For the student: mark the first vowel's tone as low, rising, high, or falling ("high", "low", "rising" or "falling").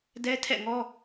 high